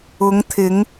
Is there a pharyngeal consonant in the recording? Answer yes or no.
no